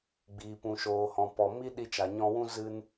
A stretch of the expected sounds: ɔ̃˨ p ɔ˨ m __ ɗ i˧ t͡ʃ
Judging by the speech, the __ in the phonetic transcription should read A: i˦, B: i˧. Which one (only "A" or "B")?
A